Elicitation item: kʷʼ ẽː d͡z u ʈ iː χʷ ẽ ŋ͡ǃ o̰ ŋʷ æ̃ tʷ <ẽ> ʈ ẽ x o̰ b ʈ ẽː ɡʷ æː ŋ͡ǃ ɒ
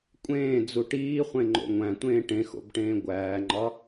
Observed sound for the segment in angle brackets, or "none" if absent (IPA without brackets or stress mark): ẽː